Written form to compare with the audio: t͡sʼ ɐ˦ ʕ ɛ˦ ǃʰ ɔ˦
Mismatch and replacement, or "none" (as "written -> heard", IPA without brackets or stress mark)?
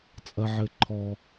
ɛ˦ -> ɘ˦